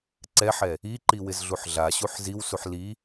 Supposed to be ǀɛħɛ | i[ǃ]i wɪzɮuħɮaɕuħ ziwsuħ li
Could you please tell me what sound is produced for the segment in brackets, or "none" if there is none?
ǃ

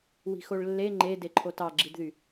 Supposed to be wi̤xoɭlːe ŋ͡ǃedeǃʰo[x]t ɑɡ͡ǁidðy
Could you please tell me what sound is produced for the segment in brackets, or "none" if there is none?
none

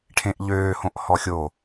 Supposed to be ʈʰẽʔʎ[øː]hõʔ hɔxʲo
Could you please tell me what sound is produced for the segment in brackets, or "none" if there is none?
øː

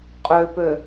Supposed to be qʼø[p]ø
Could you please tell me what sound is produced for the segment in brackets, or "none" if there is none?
p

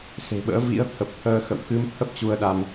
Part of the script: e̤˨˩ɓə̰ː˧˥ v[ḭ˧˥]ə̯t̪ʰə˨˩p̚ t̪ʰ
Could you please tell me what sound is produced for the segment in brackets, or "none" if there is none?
ḭ˧˥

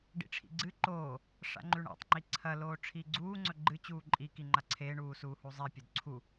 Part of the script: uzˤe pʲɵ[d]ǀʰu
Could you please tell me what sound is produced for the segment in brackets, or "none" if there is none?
d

